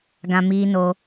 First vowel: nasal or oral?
nasal